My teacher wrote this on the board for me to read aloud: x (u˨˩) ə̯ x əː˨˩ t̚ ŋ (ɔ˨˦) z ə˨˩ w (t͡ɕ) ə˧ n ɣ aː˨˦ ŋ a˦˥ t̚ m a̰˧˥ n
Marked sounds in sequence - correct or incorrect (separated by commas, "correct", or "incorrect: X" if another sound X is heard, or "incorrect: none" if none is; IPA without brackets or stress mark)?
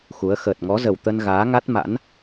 incorrect: u˨˦, correct, incorrect: t̪